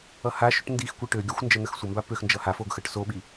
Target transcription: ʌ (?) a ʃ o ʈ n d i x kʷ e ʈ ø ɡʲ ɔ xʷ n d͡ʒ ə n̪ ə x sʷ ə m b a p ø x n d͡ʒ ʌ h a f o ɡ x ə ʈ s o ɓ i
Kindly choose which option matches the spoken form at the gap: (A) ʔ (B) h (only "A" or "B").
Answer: B